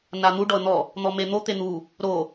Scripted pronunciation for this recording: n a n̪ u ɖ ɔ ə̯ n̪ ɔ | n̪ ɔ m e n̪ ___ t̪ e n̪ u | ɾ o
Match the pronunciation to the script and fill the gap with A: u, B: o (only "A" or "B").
B